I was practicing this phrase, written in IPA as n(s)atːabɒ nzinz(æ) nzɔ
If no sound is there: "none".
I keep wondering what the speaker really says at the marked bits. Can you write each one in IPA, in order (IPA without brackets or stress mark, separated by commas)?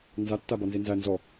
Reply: z, æ